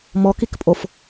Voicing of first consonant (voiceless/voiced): voiced